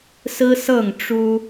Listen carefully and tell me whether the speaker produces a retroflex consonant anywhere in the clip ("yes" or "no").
yes